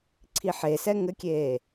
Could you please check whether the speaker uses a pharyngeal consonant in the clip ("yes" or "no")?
yes